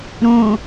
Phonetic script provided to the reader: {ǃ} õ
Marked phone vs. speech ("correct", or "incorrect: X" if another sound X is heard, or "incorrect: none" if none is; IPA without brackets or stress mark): incorrect: ɾ